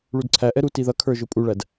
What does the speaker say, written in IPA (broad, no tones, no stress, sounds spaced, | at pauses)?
ɭ u d ǀʰ æ ʔ ɛ ɾ u t i ð ʌ kʰ ə˞ ʒ ʊ pʼ u ɭ æ d